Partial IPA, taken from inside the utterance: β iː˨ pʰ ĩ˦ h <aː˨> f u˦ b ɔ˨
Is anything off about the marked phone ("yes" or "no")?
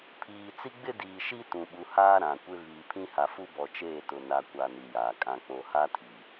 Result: yes